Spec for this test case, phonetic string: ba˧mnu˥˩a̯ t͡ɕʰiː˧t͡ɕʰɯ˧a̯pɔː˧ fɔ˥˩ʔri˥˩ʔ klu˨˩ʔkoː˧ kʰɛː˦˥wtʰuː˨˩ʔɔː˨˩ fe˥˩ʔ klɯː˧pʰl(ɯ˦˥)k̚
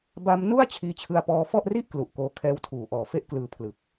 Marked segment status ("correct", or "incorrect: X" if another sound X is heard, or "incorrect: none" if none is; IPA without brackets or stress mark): incorrect: ɯ˨˩